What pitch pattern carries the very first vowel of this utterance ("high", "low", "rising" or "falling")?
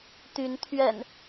rising